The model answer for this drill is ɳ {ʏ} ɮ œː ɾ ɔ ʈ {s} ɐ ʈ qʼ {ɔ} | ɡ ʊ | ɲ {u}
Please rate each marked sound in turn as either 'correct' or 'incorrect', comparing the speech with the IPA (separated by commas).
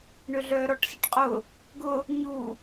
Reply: correct, correct, incorrect, correct